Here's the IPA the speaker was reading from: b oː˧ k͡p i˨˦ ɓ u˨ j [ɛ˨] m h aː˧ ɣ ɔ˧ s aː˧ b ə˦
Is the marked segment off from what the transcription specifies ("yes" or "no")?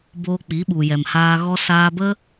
no